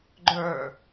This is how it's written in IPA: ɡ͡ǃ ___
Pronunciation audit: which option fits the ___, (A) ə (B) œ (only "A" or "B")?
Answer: B